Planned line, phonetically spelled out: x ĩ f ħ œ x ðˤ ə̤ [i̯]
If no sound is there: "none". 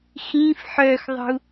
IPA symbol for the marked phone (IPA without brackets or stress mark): u̯